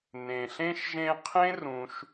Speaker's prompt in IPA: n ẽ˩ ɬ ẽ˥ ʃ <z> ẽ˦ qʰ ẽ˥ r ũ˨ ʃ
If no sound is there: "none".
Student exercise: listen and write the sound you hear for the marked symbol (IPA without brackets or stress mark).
ʒ